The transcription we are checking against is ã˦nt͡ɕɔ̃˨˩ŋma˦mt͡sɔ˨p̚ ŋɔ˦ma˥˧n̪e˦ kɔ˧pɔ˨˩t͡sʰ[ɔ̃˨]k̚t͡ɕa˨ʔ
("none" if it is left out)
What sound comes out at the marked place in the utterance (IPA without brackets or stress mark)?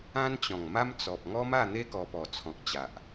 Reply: ɔ̃˨